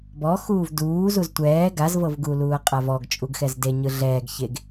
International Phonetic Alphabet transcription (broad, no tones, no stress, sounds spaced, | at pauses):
b ɔ x uː v d uː z u z tʷ ɛː ɡ a z v ɤ v ɡ u l uː ɐ̯ qʼ a v ɔ ɡ t͡ʃʼ u ɡ x ɛ z d e ɲ ɯ ɮ ɛː ɡ ç e ɡ